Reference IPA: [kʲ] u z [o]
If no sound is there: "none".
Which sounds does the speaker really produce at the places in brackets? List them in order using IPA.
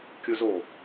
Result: kʲ, o

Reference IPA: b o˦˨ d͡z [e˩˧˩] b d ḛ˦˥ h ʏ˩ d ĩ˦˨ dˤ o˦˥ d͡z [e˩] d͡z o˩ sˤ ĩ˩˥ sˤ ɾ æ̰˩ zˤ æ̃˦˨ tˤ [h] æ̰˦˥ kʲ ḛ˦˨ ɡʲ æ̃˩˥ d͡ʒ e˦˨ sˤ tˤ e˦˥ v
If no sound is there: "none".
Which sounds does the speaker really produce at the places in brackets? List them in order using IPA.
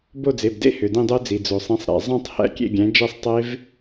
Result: e˩˧˩, i˩, h

